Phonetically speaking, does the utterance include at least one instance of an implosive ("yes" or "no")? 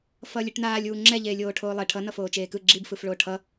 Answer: no